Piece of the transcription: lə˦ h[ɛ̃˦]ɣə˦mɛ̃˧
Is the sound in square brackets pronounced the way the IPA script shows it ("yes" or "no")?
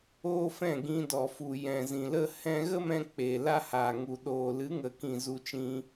no